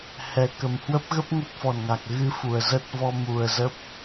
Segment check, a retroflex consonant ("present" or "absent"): absent